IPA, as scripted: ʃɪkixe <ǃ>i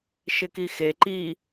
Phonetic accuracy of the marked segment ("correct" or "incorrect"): correct